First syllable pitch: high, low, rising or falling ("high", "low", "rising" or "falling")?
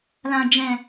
low